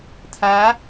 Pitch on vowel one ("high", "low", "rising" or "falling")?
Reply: rising